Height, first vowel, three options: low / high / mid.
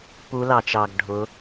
high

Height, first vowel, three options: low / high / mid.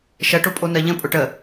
mid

